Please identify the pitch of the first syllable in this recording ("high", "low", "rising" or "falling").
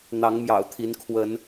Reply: rising